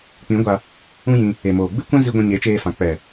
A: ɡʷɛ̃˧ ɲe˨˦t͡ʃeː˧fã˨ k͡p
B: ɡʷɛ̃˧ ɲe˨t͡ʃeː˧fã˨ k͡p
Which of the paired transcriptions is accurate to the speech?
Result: A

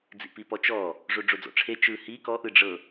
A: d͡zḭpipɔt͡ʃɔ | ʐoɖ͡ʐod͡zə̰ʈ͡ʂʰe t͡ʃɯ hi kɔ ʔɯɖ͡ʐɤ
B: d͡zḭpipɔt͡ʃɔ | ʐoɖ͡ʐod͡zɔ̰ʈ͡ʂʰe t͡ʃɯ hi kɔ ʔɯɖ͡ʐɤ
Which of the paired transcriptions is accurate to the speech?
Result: B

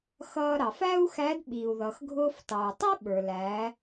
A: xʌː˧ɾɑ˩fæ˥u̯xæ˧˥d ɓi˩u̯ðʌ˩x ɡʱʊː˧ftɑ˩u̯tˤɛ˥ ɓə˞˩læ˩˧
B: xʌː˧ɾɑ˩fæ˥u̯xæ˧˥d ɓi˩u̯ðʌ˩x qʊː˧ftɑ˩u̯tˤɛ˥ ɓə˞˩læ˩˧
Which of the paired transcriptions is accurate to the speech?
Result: A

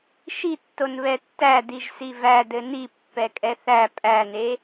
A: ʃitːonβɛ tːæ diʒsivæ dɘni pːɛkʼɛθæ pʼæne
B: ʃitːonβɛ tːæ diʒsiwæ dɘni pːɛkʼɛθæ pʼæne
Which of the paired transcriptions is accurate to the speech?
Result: A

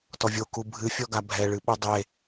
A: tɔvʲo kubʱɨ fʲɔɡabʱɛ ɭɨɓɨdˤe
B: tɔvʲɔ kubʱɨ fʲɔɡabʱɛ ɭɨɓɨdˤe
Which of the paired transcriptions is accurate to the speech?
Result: A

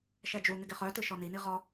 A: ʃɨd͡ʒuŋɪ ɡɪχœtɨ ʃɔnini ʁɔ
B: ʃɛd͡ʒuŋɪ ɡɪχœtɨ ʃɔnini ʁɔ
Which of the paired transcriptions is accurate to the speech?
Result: B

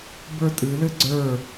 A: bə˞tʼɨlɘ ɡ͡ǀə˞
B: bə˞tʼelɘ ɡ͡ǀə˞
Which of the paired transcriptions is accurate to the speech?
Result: A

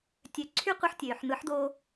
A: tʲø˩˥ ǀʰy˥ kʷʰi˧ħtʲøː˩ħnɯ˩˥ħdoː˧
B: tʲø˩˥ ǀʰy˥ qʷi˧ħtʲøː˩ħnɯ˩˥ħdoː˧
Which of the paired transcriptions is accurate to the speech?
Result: B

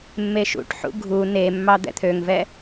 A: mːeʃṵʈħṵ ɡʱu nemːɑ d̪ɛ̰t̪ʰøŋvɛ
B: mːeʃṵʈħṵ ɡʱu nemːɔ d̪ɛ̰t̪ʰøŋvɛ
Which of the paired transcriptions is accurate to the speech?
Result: A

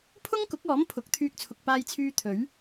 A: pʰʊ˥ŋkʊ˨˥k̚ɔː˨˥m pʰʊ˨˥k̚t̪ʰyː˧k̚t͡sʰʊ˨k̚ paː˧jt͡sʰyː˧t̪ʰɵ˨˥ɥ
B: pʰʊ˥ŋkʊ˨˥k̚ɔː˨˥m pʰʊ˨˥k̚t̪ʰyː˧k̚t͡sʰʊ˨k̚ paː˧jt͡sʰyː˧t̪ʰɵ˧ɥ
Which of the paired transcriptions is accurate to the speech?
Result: A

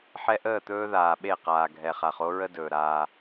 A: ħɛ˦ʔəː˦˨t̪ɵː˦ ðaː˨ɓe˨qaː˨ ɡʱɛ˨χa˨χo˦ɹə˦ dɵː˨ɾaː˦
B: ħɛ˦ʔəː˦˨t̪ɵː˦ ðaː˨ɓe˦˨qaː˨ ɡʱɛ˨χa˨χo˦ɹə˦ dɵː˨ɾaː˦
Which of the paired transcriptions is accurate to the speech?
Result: B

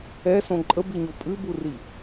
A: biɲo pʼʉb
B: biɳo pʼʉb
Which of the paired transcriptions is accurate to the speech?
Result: A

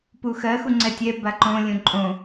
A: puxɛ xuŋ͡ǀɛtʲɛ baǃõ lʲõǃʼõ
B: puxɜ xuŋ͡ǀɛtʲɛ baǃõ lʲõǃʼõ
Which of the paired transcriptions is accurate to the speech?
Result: B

